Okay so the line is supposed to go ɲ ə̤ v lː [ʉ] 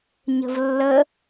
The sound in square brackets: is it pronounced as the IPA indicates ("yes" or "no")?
no